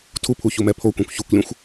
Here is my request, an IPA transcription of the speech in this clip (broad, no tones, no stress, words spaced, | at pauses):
tʰupʰu çumɛpʰokʷĩkʷ çukʷlʲũxʷ